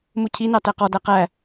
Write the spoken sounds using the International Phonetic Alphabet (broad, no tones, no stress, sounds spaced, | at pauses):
m u cʰ i n ɑ t æ q ɔ d æ q æ